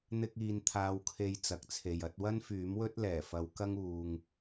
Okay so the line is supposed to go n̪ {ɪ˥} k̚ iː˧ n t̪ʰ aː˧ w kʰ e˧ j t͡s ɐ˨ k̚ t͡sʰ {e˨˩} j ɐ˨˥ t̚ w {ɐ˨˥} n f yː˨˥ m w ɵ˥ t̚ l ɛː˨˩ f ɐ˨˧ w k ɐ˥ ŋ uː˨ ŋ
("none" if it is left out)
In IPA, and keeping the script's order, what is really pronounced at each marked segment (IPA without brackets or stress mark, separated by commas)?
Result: ɪ˥, e˨, ɐ˥